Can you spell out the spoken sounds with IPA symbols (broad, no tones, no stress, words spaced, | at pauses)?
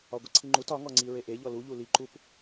ɒɡʷəǀʰiŋ͡ǃut ɒŋɔŋ͡ǀi ɹeʔeʎɔ luʎu liǃup